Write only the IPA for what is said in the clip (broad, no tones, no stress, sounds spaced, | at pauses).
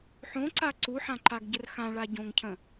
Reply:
ħ õ ǀ a ǀ u ħ ã ǃ a ɡ ɟ ə r x ã ɭ a ɟ õ ŋ cʰ ə̃